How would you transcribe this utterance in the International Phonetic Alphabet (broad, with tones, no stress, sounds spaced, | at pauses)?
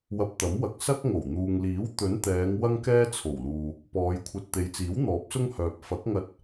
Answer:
w ɐ˧ p̚ t̪ ɐ˨˥ m w ɐ˨ k̚ s ɐ˥ k̚ ŋ o˨˩ w n̪ uː˨ ŋ l iː˨˥ w t̪ ɵ˨˥ n t̪ ɛː˨˧ ŋ w ɐ˥ ŋ k ɛː˥ t͡sʰ o˨˩ w l uː˨ | p ɔː˨˧ j kʷʰ ɐ˧ t̚ t̪ e˨˧ j t͡s iː˨˥ w n̪ ɔː˨˥ p̚ s ʊ˥ ŋ h œː˨ p̚ f ɐ˨˥ k̚ ŋ ɐ˧ t̚